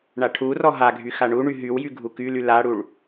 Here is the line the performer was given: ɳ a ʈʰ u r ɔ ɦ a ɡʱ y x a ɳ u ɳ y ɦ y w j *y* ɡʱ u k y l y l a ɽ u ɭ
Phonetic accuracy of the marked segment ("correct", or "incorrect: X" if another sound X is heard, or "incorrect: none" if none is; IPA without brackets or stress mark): correct